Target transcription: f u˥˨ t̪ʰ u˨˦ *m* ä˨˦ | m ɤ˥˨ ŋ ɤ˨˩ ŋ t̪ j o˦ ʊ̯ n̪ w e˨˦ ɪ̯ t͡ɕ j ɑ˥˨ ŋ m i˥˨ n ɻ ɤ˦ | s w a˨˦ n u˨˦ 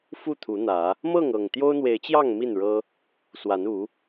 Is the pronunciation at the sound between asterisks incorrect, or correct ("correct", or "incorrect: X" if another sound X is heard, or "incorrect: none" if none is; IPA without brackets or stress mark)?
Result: incorrect: n̪